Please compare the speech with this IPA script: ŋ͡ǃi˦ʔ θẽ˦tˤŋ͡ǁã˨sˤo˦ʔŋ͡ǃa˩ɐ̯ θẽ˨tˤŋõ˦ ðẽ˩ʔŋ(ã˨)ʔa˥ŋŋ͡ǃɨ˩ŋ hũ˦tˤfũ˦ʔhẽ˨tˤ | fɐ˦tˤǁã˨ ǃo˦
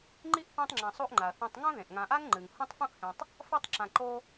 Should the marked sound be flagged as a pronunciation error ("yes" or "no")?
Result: no